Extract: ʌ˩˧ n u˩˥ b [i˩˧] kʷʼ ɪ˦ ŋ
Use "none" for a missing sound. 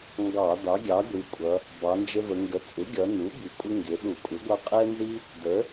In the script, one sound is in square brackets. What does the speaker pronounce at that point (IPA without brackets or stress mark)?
i˩˧